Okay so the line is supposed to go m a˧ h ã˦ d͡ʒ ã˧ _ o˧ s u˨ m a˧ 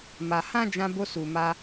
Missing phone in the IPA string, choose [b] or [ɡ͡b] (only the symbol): b